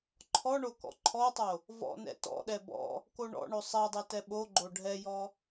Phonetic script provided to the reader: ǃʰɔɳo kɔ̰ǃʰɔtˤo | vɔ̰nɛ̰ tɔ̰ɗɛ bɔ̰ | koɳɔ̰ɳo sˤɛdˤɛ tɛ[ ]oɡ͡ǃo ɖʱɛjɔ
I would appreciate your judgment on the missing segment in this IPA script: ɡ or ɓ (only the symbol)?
ɓ